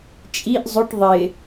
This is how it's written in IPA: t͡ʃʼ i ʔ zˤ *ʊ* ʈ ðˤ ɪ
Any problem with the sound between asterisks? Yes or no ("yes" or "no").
no